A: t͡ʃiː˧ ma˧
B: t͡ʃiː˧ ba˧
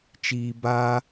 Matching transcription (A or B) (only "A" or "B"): B